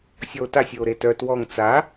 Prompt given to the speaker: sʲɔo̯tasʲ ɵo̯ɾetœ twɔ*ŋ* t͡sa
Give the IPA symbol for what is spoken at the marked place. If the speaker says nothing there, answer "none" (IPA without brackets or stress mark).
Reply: ŋ